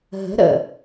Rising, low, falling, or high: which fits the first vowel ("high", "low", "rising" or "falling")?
rising